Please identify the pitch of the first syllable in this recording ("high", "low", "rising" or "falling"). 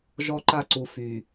high